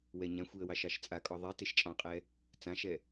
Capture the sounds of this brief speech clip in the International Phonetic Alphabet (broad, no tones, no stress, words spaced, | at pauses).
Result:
wɛɲãxʷiə̯ wɑʃɑʃt͡sʼakʼɔ ðˤi teʃt͡ʃʼɑ̃qʼɛ | t͡sãʃɛ